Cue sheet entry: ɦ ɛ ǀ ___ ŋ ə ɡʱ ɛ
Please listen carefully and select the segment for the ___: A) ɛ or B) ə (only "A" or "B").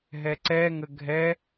A